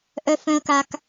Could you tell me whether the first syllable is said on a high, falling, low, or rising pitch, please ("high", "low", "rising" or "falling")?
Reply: low